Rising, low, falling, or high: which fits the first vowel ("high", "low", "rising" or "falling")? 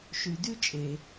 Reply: low